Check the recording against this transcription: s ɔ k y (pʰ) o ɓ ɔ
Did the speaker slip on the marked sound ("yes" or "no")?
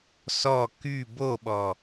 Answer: yes